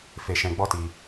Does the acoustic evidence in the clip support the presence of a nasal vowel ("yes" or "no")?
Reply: yes